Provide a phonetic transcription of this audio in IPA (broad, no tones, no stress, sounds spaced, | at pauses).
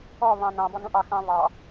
ɔ β ɑ̃ n ɑ̃ b ɔ n ũ ʔ ɑ x ɑ̃ β ɑ